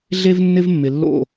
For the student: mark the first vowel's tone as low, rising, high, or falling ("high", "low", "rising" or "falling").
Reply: high